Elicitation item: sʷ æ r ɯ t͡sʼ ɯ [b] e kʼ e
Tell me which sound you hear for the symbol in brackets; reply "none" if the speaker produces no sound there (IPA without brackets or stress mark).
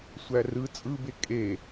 b